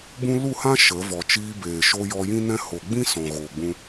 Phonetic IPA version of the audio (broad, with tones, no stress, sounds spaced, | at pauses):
b ũ˦ l u˦˨ h ã˦ ʃ ə˨˦ v ɔ˨ t͡ʃ iː˧ b eː˨ ʃ o˧ j ɔ˧ j ĩ˦ n ɛ̃˦ h o˨ ɡ͡b ĩ˦ s ɔ̃˨ ɣ oː˨ ɡ͡b ũ˧